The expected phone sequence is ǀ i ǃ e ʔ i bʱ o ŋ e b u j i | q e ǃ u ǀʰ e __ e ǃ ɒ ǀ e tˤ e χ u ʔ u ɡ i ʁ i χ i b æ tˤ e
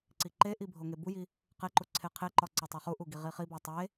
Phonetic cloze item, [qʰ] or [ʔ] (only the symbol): qʰ